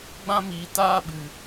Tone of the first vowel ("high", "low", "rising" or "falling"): high